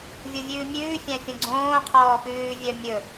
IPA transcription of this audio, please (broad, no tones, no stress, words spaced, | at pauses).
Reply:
vʲuvʲʉːmʲʉː fʲæ̃fʲõɡ͡ǀõː qʰɔːpʉː vʲœmʲɵ